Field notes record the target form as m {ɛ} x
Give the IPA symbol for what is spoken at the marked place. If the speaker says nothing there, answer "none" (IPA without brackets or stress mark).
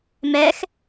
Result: ɛ